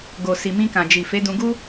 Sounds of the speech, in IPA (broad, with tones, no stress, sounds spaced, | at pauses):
ɡ o˨ s i˨ m ĩ˧ k ã˨ d͡ʒ i˨ f e˨˦ d ũ˧ ɡ u˦